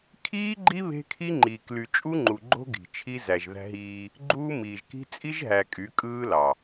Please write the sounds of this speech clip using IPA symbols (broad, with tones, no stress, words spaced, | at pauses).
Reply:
kʰiː˦ɡ͡ǃi˦ βe̤˦kʰi˦ŋ͡ǃiː˨kly˨ t͡ʃʼu˦ŋ͡ǃu˨ɡ͡ǃo̤˦ ɡi̤˨t͡ʃʰi˦ zæ˨ʒðæ̤˦ɦiː˦ | ɡ͡ǃuː˦ miː˨ʒ ki̤˦ t͡sʼi˦ʒɦæ˨ kʼy˨˦kʼɯː˦lɑ˨